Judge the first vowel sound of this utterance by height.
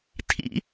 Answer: high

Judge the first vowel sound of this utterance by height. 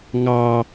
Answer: low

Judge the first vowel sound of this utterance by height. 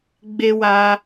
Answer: mid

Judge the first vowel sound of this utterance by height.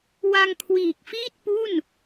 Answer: low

